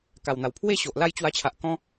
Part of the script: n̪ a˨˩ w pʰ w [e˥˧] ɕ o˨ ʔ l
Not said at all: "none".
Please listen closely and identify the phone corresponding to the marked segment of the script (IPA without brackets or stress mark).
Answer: e˥˧